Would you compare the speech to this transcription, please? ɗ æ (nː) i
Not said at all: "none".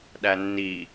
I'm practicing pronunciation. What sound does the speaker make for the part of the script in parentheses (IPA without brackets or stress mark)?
nː